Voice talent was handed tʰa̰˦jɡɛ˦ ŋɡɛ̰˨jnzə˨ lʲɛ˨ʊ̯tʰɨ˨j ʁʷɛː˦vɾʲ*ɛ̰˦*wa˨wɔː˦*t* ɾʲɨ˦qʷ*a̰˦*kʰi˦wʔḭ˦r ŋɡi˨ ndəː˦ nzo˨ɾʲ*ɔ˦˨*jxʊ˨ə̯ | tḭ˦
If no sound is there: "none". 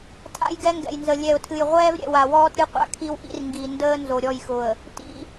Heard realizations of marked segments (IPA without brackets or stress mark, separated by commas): ɛ̰˨, t, a̰˦, ɔ˦˨